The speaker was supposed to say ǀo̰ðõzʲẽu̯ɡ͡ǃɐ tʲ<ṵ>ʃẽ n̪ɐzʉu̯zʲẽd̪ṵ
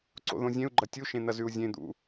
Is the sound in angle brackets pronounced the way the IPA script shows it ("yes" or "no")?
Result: no